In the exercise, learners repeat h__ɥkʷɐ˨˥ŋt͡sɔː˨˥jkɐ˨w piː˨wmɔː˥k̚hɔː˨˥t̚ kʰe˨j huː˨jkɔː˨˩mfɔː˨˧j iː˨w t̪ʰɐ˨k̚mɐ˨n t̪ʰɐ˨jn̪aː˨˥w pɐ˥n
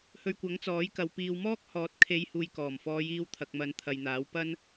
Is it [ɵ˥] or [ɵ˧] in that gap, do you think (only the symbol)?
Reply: ɵ˧